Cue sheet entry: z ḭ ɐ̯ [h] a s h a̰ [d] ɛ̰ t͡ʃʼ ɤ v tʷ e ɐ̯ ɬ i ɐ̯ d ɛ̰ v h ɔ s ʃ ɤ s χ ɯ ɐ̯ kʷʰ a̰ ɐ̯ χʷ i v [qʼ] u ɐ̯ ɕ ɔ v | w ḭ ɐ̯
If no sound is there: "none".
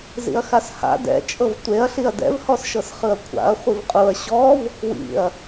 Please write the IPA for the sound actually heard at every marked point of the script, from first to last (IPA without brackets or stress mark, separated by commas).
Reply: x, d, qʼ